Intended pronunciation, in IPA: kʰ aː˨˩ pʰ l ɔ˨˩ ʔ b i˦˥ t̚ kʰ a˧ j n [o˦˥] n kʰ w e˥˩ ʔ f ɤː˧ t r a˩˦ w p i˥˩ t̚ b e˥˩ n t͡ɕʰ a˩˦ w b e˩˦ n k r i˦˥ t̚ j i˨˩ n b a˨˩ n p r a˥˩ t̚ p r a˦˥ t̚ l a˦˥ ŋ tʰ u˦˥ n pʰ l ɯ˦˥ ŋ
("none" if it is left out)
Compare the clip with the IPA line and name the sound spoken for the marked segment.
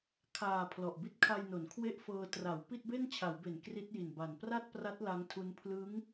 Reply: o˩˦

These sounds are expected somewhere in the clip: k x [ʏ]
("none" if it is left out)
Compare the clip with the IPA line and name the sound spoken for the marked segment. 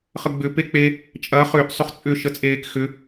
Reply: ʏ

